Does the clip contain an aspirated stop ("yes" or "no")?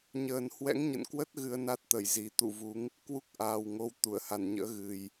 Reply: no